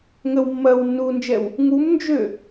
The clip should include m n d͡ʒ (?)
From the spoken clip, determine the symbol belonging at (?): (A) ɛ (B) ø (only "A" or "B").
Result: B